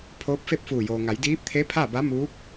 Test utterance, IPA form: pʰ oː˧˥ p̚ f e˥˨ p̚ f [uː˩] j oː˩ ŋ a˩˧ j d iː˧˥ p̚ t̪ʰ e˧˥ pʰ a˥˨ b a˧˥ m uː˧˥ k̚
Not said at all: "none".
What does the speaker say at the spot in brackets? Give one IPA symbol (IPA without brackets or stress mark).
uː˧˩